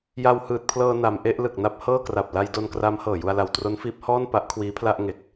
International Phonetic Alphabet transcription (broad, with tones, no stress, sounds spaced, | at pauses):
j a˧ w h ɯː˨˩ t̚ pʰ l ɤː˧ n a˧ m ʔ e˥˩ ʔ l ɯ˨˩ k̚ n a˦˥ p̚ h ɤː˥˩ k r a˨˩ p̚ l a˧ j d o˧ n k r aː˦˥ m h ɤː˨˩ j u˧ a̯ l a˨˩ w t r o˦˥ n f iː˦˥ p̚ h ɔː˥˩ n p a˦˥ ʔ kʰ w iː˦˥ pʰ l a˥˩ ʔ ŋ e˨˩ k̚